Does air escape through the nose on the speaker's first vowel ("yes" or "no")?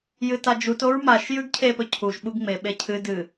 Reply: no